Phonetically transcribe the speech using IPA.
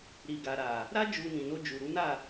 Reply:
ɾi˨ɡa˨ɾa˨ | ɾa˦ d͡ʒu˧ nĩ˨no˧ d͡ʒu˨ɾu˨˦na˦˨

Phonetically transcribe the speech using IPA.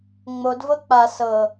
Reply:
ŋ͡mod vɤk͡pa sɤ

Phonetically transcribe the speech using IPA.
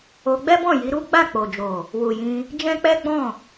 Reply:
o˧ɡ͡bɛ˦bɔ̃˦˨ji˨˦ ɾu˦ ɡ͡ba˦˨k͡po˨d͡ʒo˨ | wu˨jĩ˧ | d͡ʒɛ̃˦k͡pɛ˦ɡ͡bɔ̃˦˨

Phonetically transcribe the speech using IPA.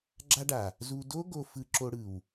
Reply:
ɡ͡ǁa˧ɖa˨ | zu˧ do˦ɡo˧ fɯ˧ǁo˧ɽɯ˨w

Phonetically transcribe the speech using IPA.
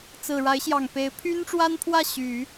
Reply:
t͡sɹ̩˨˩ɻa˧˥ɪ̯ɕjɑ˨˩ŋ pe˧˥ɪ̯ pʰy˥nʈ͡ʂwa˥npʰwä˥˩ ɕy˨˩˦

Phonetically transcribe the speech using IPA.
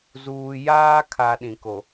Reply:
zuː˨jaː˦kʰa˨ ɗĩ˨ko˨

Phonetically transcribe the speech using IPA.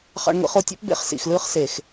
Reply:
χɑ̰˧ɳŋʷḭ˧χo˧tʲo̰˦p bḛ˧χsḭ˨xlɯː˧χ se˨x

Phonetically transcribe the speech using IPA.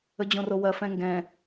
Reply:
əd͡ʑõrowɐ fɛ̃ŋɡɛ̃

